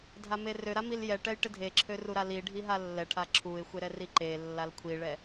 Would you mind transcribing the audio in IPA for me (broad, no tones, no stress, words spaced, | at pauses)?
dʱamerøɾa miljɛʈɛj ʈɪdʱeǁʰø ruɾaliɖʱi ɦalːɛʈʰa ǁʰuɪ̯xʷe ɾɛriǃelːal kʷʰiɭɛ